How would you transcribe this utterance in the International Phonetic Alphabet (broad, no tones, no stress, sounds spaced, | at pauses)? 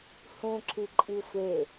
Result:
h ũ ǁ i ǃʼ i sʷ e